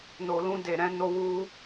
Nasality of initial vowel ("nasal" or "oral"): oral